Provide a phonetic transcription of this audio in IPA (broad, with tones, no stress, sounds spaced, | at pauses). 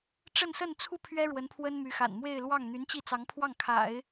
ʈ͡ʂ ə˥˧ n s ə˥˧ n t͡sʰ u˥˩ pʰ ɥ ɛ˥ ɻ w ə˧˥ n pʰ w ə˥ n m y˧˥ x a̰˨˩ n m w e˥˧ ɪ̯ l w ɑ˥˩ ŋ n̪ y˧˥ n t͡ɕ i˥˩ t͡s ɑ˧˥ ŋ pʰ w ɑ˥˩ ŋ kʰ a̰˨˩˦ ɪ̯